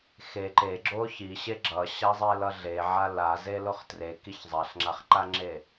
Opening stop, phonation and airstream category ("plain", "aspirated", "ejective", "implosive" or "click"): click